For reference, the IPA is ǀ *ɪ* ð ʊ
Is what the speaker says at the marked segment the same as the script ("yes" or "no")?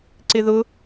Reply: yes